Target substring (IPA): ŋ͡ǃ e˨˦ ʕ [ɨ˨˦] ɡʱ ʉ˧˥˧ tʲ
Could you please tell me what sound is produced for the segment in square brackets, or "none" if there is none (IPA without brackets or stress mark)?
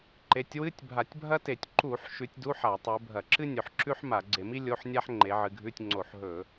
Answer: ɨ˨˦